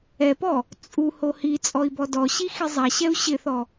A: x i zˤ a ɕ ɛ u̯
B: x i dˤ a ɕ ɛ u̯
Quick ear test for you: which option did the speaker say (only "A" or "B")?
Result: A